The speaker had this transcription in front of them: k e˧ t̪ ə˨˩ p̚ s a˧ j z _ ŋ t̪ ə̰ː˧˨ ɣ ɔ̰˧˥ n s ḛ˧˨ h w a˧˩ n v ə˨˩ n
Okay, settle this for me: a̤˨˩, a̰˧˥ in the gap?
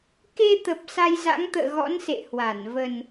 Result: a̰˧˥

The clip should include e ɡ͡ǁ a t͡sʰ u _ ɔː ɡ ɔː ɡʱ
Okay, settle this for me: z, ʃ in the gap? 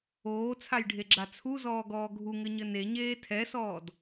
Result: z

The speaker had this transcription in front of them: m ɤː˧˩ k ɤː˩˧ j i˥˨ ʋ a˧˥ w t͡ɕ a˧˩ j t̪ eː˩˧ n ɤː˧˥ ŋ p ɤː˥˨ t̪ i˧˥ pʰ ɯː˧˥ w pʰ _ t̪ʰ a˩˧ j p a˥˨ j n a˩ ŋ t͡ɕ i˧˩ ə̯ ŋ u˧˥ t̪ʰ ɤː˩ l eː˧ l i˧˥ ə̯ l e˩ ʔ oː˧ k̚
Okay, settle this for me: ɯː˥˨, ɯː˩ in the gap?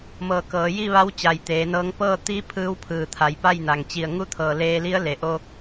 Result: ɯː˩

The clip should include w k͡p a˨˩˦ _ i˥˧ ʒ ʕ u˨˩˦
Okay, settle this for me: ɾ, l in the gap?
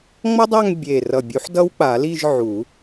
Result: l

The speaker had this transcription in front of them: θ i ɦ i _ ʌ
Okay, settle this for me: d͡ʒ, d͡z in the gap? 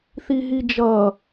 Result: d͡ʒ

